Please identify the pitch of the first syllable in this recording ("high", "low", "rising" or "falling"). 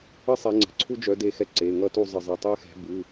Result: high